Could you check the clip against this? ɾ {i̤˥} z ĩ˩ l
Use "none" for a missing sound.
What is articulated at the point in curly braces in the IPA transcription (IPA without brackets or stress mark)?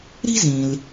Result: i̤˥